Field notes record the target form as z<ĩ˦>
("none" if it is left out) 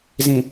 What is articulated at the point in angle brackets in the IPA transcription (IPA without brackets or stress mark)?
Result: ĩ˨